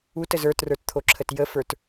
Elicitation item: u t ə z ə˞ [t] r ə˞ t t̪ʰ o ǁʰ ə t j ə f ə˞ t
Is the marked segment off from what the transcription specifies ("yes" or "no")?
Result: no